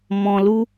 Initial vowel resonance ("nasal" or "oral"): nasal